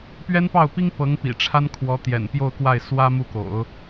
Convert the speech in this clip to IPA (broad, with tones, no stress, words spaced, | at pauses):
pɥɛ˥npɑ˥˩ʊ̯pi˥ŋ pɤ˧˥ŋpḭ˨˩ ʈ͡ʂʰa˥nkʰwɔ˧˥ t̪jɛ̰˨˩npjo˥˧ʊ̯kwa˥˩ɪ̯ swä˥ mu˥˩ko̰˨˩˦ʊ̯